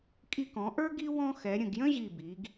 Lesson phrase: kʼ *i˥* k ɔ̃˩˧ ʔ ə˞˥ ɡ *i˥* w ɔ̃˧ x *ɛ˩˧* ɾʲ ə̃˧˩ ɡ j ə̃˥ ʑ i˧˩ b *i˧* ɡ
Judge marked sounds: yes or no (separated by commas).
no, yes, yes, no